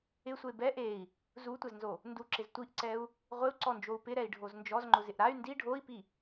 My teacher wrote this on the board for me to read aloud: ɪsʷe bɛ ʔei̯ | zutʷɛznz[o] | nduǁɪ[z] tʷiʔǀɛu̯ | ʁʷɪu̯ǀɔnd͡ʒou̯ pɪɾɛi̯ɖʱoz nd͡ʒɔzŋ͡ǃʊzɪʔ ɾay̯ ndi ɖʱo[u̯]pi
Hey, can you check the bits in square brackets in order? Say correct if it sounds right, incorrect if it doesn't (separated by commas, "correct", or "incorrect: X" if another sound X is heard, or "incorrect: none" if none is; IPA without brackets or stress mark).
correct, correct, incorrect: i̯